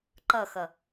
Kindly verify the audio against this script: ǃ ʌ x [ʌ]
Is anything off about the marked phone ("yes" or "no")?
no